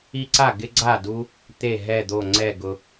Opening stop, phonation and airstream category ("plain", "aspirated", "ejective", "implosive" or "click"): click